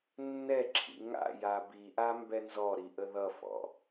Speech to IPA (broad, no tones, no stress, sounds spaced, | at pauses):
nː ɛ ǁʰ ḭ ŋ a̰ j a b i ʔ a m b ɛ n z ɔ ɾ i ʔ ə ð ʌ f ɔ̰